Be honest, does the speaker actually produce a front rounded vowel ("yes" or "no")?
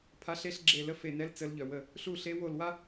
yes